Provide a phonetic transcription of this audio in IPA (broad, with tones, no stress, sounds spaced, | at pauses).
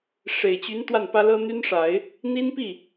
ʂ e˨˩ ɪ̯ t͡ɕ y˧˥ n t̪ w a˥˩ n p ä˥ l ɤ˥ n̪ y˥ n ʂ a˨˩˦ ɪ̯ | n̪ i˥ n p i˥˩